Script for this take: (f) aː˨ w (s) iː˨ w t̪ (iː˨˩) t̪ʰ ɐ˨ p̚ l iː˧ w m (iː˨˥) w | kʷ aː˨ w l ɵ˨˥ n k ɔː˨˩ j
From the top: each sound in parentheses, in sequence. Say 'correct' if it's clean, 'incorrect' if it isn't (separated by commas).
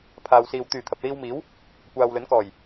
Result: incorrect, correct, incorrect, correct